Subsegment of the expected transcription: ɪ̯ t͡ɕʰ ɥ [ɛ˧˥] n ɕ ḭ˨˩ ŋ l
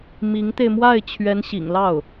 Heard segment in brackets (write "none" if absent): ɛ˧˥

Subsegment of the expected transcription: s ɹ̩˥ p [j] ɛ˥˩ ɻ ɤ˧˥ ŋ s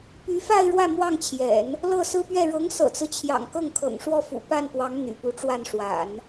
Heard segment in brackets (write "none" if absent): ɥ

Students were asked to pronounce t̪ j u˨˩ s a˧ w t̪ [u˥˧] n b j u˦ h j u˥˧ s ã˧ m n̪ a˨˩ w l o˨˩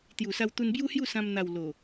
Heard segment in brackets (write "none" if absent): u˧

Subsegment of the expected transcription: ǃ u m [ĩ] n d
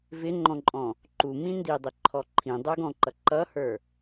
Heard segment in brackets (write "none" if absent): ĩ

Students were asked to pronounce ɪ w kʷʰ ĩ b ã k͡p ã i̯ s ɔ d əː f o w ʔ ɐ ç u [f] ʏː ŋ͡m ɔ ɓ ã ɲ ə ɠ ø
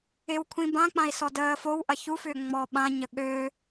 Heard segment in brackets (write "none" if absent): f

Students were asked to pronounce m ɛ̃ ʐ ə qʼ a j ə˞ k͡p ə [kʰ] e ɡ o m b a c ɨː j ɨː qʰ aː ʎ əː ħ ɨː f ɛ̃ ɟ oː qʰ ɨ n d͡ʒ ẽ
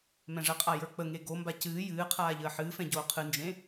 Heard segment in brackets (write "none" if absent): ŋ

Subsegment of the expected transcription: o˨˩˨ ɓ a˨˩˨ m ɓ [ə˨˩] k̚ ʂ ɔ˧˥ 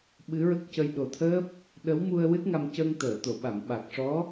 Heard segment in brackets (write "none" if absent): a˨˩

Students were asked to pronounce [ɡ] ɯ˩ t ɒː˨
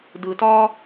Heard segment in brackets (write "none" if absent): d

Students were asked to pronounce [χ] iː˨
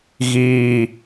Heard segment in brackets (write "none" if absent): ɣ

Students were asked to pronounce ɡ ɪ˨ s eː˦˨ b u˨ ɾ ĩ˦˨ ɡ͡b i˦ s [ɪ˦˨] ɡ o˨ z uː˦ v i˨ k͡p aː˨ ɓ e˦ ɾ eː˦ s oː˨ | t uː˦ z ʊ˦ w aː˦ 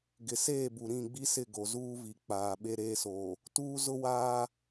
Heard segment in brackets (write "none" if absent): ɪ˦˨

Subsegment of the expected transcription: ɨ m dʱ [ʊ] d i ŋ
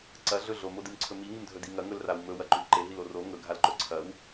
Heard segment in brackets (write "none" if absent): ɵ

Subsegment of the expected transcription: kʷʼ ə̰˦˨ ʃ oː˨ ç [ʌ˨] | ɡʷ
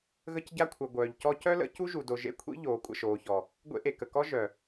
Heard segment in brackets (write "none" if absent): ɔ˨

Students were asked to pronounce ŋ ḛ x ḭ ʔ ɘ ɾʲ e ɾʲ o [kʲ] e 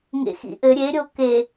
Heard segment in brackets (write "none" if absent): k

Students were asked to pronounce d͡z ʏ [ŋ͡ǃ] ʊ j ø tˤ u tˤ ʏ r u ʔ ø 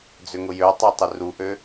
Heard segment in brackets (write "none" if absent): ŋ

